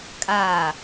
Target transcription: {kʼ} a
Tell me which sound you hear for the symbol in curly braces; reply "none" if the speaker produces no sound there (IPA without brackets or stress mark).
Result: kʼ